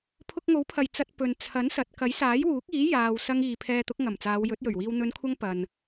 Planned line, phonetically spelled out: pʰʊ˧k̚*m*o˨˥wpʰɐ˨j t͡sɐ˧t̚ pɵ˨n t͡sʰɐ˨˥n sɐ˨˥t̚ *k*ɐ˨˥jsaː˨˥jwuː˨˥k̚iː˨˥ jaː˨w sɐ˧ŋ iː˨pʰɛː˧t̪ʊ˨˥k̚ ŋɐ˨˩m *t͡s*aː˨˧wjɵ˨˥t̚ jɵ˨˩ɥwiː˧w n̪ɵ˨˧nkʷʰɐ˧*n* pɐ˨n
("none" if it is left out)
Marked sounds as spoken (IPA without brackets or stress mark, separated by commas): ŋ, k, t͡s, ŋ